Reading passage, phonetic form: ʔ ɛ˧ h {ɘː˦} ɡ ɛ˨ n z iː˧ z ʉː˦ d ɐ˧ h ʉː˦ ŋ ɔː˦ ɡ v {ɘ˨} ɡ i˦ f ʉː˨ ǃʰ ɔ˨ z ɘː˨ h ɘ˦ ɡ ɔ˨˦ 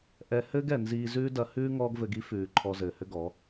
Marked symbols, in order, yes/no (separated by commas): yes, no